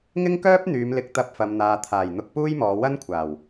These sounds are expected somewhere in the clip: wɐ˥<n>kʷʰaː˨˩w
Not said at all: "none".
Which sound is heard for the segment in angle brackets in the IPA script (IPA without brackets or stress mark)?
n